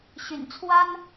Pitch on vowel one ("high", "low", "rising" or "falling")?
low